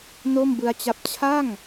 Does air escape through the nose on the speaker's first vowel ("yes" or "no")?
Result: no